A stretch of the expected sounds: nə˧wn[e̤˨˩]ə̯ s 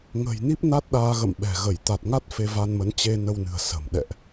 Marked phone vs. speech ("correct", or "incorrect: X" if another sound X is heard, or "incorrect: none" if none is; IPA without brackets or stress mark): incorrect: ɨ̤˨˩